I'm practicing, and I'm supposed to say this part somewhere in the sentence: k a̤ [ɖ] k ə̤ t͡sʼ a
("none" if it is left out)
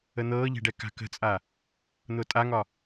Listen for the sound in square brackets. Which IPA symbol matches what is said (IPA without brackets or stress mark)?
none